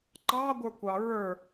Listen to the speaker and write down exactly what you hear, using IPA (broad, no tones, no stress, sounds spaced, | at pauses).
ǃ ɑ ɡʷ ə˞ kʷ ɑ ɹ ə˞